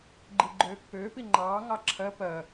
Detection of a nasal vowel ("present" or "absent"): absent